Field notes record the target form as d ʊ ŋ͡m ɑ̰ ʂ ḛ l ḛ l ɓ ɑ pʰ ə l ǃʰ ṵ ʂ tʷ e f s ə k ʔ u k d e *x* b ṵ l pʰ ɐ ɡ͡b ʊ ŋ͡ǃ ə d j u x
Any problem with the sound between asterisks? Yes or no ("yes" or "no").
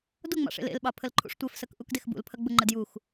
no